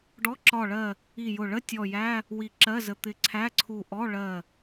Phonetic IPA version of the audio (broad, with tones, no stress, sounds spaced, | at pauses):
ɖ ɔ˧˥˧ ǁ ɒ˧˩ ɭ ɜ˧˩ | i˧˩ j ʊ˧˩ ɭ ə˧˥˧ tʲ ɔ˧˩ j æ˧˥˧ | w i˧˩ ǁ ɜ˧˥˧ z ə˧˩ t̪ ɪ˧˩ ǀʰ æ˧˥˧ ǀʰ u˧˩ ʔ ɔ˧˥˧ ɭ ɜ˧˩